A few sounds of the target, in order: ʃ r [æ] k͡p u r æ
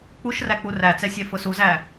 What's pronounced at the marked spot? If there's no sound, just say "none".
æ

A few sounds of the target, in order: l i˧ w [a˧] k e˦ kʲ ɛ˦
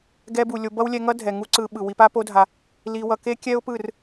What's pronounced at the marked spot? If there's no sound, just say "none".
ʌ˧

